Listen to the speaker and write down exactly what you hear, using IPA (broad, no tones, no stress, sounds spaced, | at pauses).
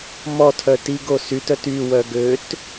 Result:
m ɔ tʰ œ t i ɡ o s y t œ t y w œ ɡ ø t